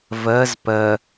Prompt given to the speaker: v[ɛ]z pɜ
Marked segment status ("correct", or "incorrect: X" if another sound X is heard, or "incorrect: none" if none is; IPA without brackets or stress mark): incorrect: ɜ